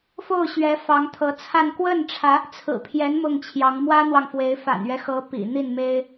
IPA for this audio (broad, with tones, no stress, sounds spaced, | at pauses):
f o˥˩ ʊ̯ ɕ ɥ ɛ˧˥ f ɑ˧˥ ŋ t̪ʰ ɤ˧˥ t͡sʰ a˥˧ n k w ə˥˩ n ʈ͡ʂʰ ä˧˥ | t͡sʰ ɹ̩˨˩ pʰ j ɛ˧˥ n m ʊ˥˩ ŋ t͡ɕʰ j ɑ˧˥ ŋ m w ä˥ n̪ w ɑ˨ ŋ f w e˧˥ ɪ̯ f a̰˨˩ n ɥ ɛ˦ x ɤ˧˥ p ḭ˨˩ n̪ i˥˩ n m e˥ ɪ̯